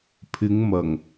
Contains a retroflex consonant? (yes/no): no